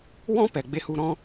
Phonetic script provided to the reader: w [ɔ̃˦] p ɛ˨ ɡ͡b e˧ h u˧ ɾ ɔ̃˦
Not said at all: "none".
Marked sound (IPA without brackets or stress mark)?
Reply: ɔ̃˦